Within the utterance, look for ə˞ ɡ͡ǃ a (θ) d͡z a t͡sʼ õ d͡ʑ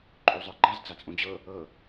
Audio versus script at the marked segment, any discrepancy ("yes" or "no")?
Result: yes